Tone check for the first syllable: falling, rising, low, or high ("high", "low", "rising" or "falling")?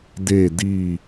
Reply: falling